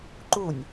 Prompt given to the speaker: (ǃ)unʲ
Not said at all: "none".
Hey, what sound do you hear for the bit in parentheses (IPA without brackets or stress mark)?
ǃ